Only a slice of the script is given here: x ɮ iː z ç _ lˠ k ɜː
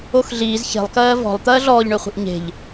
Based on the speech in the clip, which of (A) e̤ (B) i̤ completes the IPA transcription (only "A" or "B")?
A